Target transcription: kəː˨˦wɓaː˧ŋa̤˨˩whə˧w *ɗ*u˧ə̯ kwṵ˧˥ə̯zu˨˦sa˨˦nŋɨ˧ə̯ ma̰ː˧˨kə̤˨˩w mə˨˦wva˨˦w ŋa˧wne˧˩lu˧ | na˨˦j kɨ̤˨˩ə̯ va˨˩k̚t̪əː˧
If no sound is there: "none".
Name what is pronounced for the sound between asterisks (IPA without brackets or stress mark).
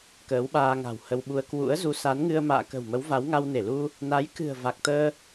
ɓ